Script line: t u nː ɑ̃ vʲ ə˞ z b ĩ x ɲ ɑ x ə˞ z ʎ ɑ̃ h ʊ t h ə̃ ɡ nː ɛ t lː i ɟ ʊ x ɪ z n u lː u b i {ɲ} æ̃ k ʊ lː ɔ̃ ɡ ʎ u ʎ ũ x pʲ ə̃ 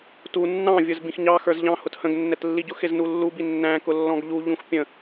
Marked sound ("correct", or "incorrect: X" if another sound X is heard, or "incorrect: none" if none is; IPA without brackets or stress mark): incorrect: nː